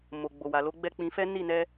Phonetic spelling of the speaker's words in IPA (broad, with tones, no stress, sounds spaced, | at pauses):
m o˨ ɡ͡b o˨ w a˨ l o˨˦ ɡ͡b ɛ˦˨ k͡p ĩ˧ f ɛ˦ n i˦˨ n ɛ˧